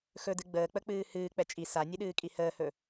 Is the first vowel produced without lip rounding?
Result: no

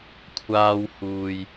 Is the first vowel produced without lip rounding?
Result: yes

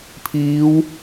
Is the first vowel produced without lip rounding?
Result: yes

